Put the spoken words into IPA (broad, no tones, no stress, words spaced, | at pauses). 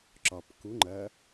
ǁɒp ku ŋ͡ǃɐ